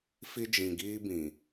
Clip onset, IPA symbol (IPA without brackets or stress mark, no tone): f